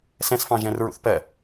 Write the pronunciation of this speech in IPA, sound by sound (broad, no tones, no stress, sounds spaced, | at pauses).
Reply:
s ɛ̃ s f ɑ̃ ʒ ɛ̃ r ɹ ṵ θ p ɜ